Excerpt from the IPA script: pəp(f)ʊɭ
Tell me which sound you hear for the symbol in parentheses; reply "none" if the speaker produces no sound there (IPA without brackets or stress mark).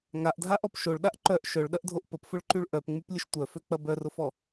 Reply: f